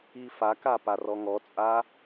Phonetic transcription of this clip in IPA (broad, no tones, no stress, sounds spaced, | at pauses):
i f a k a p a r ɔ ŋ ɔ t͡sʼ a